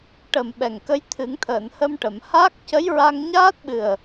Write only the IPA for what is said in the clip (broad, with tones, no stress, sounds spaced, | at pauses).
ʈ ə˨˩ m ɓ ɛ˨˩ ŋ k ə˧˥ j t̪ʰ ɨ˨˩˦ ŋ t̪ʰ əː˨˩˨ n h ə˧ m ʈ ə˨˩˨ m h aː˦˥ k̚ c ə˧˥ j ɹ a˧ ŋ ɲ aː˦˥ t̚ ɓ ɨ˨˩ ə̯